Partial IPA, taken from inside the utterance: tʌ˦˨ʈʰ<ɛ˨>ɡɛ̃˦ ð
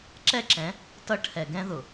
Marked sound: correct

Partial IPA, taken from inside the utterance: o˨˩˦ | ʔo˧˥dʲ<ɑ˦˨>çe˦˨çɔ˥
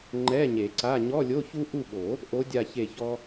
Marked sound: incorrect: a˦˨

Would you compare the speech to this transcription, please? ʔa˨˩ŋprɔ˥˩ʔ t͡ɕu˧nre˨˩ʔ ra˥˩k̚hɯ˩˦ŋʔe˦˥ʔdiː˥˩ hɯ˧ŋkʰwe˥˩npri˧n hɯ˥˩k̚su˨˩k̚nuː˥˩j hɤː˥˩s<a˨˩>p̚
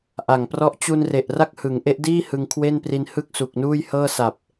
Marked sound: correct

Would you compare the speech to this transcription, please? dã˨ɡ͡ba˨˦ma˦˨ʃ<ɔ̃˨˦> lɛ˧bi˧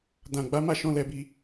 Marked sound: correct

